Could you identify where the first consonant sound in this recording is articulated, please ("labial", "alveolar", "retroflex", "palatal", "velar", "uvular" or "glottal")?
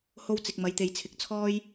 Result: glottal